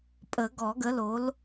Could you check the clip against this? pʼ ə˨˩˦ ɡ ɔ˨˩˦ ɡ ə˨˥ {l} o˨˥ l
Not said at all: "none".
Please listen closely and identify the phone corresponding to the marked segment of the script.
l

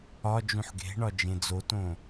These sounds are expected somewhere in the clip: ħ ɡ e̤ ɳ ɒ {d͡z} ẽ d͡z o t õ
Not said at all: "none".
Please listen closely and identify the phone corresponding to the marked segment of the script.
d͡ʒ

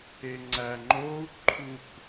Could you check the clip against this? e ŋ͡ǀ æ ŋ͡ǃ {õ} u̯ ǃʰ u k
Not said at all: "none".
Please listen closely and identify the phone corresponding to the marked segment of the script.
o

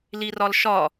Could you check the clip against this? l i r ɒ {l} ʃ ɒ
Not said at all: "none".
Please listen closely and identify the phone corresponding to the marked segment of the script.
l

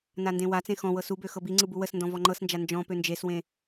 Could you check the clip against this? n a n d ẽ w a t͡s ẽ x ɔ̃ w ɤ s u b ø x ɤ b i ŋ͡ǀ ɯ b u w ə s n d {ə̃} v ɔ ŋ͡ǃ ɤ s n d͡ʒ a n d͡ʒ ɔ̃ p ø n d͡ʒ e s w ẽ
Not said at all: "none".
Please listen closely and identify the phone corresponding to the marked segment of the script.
ɔ̃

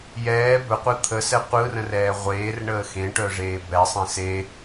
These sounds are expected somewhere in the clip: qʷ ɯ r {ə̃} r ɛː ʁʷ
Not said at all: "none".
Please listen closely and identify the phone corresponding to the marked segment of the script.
ə̃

